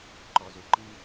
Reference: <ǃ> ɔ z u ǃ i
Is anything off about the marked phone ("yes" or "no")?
no